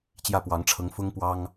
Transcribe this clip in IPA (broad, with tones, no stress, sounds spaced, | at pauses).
t͡ɕ j ä˥˩ p w ɑ˧˥ ŋ ʈ͡ʂʰ ɤ˧˥ ŋ f ʊ˥ ŋ p w ɑ˥ ŋ